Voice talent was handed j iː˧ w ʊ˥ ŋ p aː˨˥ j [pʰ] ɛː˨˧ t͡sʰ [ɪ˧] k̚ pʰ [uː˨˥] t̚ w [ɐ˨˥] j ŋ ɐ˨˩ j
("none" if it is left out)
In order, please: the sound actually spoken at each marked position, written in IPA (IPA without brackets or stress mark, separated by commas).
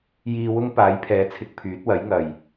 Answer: pʰ, ɪ˧, yː˨˥, ɐ˨˥